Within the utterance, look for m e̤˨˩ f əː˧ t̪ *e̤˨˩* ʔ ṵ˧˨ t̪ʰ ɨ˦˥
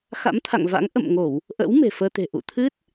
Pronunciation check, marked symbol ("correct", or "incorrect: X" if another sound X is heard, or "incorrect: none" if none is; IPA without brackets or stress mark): correct